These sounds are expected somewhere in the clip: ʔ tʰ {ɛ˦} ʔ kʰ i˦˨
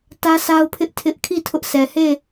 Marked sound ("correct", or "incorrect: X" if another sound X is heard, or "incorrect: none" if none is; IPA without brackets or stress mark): incorrect: ɪ˦